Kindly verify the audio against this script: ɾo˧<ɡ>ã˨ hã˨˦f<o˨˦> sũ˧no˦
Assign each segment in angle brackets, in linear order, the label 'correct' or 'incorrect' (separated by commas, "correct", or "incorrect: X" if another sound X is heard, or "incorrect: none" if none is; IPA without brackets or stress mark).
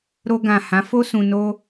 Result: correct, incorrect: o˦